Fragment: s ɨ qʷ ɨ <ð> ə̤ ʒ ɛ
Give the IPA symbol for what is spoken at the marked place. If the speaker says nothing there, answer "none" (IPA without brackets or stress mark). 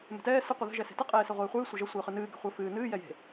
ð